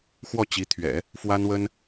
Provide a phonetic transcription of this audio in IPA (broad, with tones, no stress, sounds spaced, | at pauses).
x w ɔ˥˩ t͡ɕ i˧˥ t̪ʰ ɥ ɛ̰˨˩˦ | f w a˥ n w ə˥ n